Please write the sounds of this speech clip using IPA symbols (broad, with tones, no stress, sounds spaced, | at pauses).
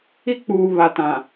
i˦ k͡p uː˨ β a˨ t ã˨